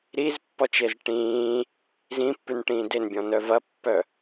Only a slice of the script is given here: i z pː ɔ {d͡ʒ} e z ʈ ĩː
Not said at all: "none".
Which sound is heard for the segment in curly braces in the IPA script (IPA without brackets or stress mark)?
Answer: t͡ʃ